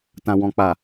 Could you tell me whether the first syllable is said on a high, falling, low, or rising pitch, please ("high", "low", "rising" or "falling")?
low